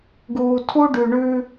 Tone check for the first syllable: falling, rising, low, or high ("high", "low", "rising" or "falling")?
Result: low